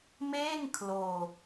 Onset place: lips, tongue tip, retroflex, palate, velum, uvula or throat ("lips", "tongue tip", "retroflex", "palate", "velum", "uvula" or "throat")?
lips